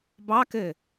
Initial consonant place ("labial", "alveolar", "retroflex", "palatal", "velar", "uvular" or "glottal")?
labial